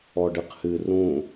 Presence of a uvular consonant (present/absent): present